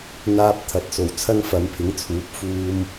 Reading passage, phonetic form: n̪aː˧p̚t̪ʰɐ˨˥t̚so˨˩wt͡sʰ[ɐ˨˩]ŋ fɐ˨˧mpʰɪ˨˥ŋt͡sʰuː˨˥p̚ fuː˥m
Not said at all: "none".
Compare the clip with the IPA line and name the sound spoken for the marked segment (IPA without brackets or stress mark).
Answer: ɐ˥